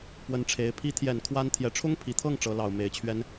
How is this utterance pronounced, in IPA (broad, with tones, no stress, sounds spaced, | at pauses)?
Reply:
p w ə˧˥ n ʈ͡ʂʰ e˧˥ ɪ̯ pʰ i˧˥ t̪ʰ j ɛ˨˩ n kʰ w a˥ n t̪ʰ j ɛ˧˥ ʈ͡ʂʰ ʊ˥ ŋ pʰ i˨˩ t̪ʰ ɤ˥˩ ŋ ʈ͡ʂ ɤ˧˥ l ɑ˨˩ ʊ̯ m e˧˥ ɪ̯ t͡ɕʰ ɥ ɛ˥ n